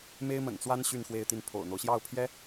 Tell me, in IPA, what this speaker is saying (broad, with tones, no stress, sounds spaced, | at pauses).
m e˥ ɪ̯ m ə̰˨˩ n t͡s w a˥ n ɕ y˥˧ n x w e˥˧ ɪ̯ t̪ i˥˩ n pʰ o̰˨˩ ʊ̯ n̪ o˦ ʊ̯ ɕ j ɑ˥˩ ʊ̯ pʰ j ɛ˥